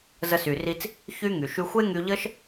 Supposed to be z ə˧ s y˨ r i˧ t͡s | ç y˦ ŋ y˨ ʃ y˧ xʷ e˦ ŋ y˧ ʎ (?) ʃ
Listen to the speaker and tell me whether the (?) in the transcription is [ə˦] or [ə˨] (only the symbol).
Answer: ə˦